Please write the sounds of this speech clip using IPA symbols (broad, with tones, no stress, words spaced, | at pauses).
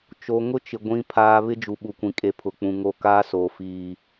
t͡ʃo˨ŋʊ˦t͡ʃɪ˨ ɡʷĩ˨pʰaː˨ βɪ˦d͡ʒu˨ɓu˨kʷĩ˨ kʼe˨pʰʊ˨k͡pũ˨ ŋo˦ kaː˦soː˨ fiː˦